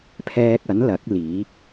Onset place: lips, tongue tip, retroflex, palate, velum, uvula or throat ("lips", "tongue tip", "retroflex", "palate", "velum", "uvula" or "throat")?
lips